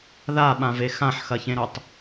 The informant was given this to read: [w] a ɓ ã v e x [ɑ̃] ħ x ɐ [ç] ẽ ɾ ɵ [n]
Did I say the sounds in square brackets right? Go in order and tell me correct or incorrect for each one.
incorrect, incorrect, correct, incorrect

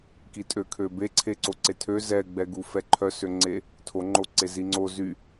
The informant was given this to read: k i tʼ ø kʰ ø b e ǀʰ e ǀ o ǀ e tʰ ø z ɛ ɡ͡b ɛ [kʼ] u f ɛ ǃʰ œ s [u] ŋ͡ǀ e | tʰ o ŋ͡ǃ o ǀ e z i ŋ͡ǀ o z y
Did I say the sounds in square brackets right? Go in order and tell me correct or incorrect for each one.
incorrect, incorrect

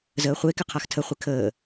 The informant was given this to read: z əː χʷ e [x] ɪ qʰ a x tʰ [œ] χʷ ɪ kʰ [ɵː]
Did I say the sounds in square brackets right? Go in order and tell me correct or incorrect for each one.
incorrect, incorrect, incorrect

